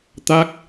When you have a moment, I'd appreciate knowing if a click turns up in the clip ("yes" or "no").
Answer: no